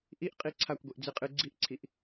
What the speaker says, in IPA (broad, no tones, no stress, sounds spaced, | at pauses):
ʔ i ʔ qʼ i ǀʰ a kʷ ɡʷ i ʔ d͡z i qʼ ɨ ɡ͡ǀ i ʔ ǀʰ i ʔ